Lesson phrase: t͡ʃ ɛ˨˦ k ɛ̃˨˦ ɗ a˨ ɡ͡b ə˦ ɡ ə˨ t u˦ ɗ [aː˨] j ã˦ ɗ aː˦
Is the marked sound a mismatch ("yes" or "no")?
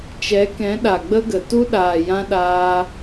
no